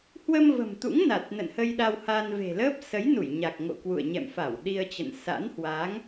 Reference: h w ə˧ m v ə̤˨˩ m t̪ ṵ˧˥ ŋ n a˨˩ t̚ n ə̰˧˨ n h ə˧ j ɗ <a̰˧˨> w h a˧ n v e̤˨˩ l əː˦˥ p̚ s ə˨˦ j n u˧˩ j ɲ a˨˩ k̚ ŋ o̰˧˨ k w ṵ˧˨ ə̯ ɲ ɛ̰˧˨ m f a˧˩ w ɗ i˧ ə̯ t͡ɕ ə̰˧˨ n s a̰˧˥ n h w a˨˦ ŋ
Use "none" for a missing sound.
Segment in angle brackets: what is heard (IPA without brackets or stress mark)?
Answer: a˧